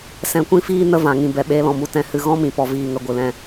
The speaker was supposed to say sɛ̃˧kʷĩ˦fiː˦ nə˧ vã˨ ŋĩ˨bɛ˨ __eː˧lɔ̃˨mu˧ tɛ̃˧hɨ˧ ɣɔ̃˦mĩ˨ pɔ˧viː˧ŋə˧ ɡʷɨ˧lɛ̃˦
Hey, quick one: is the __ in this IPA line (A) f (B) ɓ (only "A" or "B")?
B